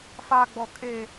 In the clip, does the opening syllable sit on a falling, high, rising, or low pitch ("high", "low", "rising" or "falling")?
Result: low